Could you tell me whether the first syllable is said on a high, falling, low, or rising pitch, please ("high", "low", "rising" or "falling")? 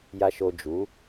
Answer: low